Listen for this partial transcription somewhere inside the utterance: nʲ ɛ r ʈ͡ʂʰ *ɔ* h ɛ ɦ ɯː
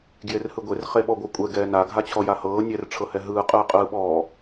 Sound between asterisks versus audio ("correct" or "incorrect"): incorrect